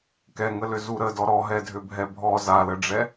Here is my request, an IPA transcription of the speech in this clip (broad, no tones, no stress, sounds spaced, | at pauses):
k ɛ ŋ ə l ʏ z u ɾ ə d ɔ ɾ ɔ ɦ ɛ dʱ ʏ bʱ ɛ bʱ ɔ z a l ə ɖ͡ʐ ɛ